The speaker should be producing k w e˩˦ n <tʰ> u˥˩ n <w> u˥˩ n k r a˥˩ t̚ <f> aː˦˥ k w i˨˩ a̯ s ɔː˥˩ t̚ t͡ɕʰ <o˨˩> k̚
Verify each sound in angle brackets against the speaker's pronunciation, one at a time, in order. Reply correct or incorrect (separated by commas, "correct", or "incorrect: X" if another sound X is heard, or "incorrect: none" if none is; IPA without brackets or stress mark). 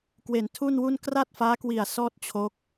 correct, correct, correct, incorrect: o˦˥